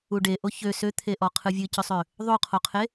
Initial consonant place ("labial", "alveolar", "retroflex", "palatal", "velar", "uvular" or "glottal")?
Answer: retroflex